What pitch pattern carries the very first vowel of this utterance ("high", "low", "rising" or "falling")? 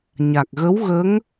low